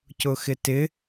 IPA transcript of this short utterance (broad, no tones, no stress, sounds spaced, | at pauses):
c ʊ x ɪ t ɪ